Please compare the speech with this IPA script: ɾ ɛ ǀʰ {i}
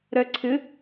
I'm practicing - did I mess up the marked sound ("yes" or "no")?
yes